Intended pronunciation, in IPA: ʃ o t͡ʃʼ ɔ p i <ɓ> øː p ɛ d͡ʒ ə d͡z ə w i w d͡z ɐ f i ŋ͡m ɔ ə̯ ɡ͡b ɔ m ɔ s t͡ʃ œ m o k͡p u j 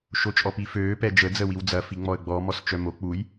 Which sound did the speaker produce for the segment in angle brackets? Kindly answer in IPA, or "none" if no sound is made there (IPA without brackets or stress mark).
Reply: f